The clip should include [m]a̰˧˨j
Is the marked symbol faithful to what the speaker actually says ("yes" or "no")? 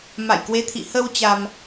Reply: yes